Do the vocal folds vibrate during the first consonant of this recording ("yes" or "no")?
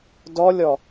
yes